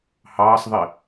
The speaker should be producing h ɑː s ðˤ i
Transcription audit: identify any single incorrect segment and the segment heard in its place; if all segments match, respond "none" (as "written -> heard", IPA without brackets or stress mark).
none